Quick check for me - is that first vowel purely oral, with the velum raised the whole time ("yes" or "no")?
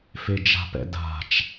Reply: yes